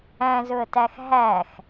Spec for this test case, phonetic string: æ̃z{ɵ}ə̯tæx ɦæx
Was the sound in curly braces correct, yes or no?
yes